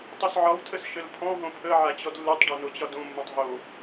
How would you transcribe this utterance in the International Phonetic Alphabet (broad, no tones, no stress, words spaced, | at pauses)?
tˤosʕɒwtʰəs ʃəlpʰɔ̃ɦõ pʰə ʕat͡ɕɔdlːutˤɖo not͡ɕɒdõmːõtˤ ɦo